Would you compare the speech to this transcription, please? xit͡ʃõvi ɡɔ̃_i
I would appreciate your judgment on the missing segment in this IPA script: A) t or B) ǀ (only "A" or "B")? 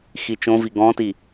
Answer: A